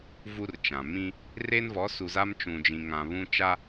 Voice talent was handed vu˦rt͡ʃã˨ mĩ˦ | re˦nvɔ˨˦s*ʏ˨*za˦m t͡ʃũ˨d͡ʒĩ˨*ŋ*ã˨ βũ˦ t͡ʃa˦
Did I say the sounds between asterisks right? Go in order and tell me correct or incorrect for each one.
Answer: incorrect: u˨, correct

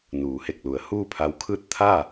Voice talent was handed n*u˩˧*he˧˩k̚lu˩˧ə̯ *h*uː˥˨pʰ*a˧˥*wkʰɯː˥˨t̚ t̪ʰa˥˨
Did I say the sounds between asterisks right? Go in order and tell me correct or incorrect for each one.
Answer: incorrect: uː˩˧, correct, correct

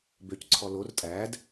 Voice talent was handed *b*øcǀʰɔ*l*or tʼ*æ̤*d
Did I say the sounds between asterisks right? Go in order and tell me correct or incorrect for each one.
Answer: correct, correct, incorrect: æ

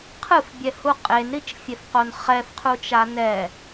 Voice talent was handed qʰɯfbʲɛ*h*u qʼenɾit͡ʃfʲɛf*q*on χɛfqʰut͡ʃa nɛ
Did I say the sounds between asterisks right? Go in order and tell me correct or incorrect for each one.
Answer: correct, correct

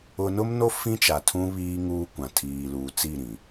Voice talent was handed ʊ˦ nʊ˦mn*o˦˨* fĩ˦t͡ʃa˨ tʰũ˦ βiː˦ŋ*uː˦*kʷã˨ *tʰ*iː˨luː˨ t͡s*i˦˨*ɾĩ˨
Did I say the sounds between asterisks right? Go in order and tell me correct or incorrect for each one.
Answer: incorrect: o˦, correct, correct, correct

